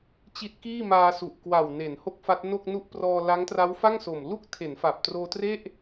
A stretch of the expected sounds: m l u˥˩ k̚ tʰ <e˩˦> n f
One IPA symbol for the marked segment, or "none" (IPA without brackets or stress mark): e˩˦